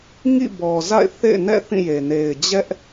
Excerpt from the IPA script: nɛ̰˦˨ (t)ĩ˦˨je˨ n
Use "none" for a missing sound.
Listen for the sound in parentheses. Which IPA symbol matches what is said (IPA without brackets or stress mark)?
θ